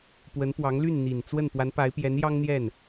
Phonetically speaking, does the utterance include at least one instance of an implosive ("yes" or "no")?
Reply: no